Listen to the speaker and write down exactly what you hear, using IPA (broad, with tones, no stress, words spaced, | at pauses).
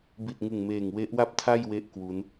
bi˨˩t̚ŋɯ˨˩ŋmeː˨˩ŋ we˦˥ʔwa˥˩p̚tʰa˥˩jwe˦˥ʔ kwu˦˥n